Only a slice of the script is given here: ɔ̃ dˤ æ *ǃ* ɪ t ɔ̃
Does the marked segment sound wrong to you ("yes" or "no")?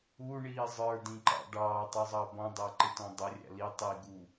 no